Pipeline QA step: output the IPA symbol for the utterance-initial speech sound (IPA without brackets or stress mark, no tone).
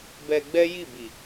b